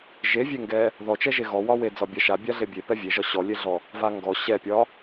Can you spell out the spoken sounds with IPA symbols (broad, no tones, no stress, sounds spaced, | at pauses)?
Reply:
ʒ e vʲ e ŋ ɡ ɛ | ð ɔ t͡ʃ ɛ ʒ e ɣ ɔ w ɒ w e d͡z ɒ bʲ a ʃ a bʲ a ɮ e bʲ e p ɛ vʲ e ʒ ɒ ɕ ɔ lʲ e ɮ ɔ | v a ŋ ɡ ɔ ɕ ɛ pʲ ɒ